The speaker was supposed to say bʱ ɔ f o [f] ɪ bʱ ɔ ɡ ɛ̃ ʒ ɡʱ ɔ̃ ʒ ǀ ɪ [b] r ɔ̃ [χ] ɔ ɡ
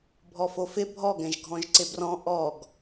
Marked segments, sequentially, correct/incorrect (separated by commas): correct, correct, incorrect